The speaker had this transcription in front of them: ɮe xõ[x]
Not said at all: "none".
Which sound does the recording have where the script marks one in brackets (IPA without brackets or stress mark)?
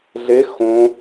none